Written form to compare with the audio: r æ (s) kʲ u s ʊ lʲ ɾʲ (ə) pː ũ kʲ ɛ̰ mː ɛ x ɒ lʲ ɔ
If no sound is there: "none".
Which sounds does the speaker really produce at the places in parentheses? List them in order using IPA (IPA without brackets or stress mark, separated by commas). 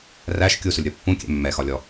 ʃ, ɔ